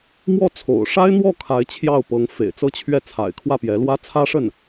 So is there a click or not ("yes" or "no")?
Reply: no